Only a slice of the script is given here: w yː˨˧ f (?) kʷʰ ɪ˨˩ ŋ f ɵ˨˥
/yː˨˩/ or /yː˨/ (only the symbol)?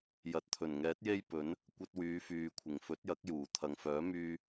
yː˨